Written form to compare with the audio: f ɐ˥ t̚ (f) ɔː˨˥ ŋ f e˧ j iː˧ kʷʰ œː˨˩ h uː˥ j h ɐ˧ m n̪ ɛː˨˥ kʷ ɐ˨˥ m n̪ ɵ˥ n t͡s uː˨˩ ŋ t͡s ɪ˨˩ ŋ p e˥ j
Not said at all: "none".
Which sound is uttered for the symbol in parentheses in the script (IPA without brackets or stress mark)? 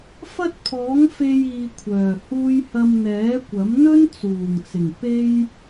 pʰ